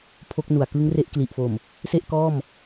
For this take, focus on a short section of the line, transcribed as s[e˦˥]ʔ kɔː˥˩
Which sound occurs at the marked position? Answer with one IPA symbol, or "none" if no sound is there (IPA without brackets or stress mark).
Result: e˥˩